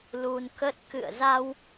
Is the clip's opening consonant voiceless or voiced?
voiced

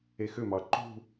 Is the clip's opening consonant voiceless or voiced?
voiceless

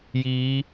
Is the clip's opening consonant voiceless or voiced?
voiced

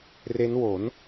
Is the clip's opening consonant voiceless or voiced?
voiced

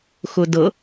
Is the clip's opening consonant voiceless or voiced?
voiceless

